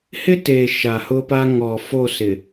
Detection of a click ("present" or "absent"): absent